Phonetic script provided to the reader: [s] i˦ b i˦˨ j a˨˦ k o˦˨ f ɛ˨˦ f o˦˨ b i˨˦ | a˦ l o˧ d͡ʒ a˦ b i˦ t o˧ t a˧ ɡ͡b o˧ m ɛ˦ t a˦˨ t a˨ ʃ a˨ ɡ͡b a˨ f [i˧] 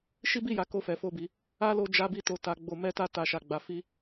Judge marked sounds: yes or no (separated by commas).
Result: no, yes